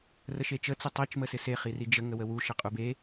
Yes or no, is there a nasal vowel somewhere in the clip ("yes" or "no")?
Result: no